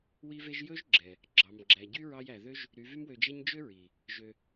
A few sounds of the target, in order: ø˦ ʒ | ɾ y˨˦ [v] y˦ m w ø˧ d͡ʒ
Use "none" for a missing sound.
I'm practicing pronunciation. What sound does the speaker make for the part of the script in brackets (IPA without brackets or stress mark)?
v